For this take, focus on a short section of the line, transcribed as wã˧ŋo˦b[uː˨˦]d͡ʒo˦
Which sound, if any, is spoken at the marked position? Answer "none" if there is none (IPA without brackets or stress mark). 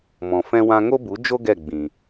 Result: u˨˦